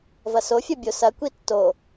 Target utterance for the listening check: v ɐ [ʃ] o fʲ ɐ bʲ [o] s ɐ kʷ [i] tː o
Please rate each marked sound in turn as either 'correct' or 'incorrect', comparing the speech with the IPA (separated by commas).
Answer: incorrect, correct, correct